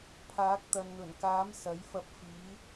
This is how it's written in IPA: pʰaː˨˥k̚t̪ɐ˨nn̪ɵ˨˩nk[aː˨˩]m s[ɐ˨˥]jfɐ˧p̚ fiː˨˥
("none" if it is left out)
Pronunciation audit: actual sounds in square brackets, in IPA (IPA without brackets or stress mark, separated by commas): aː˨˥, ɐ˨˥